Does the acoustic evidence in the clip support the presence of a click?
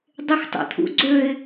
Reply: yes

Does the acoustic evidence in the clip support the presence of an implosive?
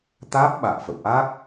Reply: yes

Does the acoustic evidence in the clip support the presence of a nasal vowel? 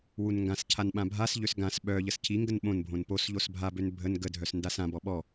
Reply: yes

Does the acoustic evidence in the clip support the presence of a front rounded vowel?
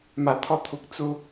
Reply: no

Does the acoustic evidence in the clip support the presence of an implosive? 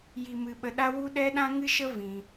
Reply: yes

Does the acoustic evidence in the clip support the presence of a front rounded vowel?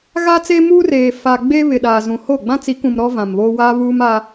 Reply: no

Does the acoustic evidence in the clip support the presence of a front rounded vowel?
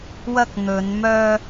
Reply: yes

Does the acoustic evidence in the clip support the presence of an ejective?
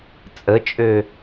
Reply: yes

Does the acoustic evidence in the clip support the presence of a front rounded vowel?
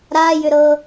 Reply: yes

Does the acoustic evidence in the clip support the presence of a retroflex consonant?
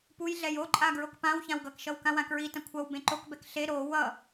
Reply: no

